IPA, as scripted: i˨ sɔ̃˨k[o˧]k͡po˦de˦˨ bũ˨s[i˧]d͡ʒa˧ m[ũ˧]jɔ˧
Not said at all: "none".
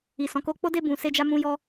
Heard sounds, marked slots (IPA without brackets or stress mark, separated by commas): o˧, e˧, ũ˧